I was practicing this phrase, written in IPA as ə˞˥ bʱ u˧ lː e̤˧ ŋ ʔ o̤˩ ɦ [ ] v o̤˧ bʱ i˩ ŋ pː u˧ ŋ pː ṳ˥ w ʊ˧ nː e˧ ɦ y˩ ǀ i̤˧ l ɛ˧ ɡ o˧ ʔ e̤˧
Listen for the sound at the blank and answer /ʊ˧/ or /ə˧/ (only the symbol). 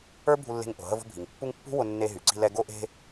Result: ə˧